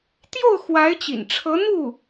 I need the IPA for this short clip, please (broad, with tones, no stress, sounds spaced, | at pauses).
t̪ j o˥˩ ʊ̯ x w a˧˥ ɪ̯ t͡ɕ ḭ˨˩ n ʈ͡ʂʰ ɤ˧˥ n̪ u˥˩